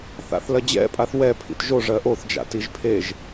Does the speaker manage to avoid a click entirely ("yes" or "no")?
yes